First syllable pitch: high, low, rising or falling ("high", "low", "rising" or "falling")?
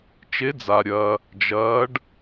rising